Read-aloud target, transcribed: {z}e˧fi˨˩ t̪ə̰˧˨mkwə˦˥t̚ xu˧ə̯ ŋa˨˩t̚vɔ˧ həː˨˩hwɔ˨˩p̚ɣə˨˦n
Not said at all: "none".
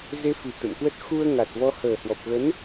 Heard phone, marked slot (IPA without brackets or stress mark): z